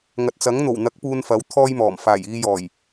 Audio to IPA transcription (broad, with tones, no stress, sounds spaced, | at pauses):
ŋ ɐ˨ t̚ t͡s ɐ˨˥ ŋ n̪ o˨˩ w n̪ ɐ˨˥ k̚ p uː˧ n f ɐ˨˥ w t̪ʰ ɔː˥ j m ɔː˨˩ m f aː˨˩ j iː˧ j ɔː˨˩ j